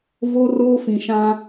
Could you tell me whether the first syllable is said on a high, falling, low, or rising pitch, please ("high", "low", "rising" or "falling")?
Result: high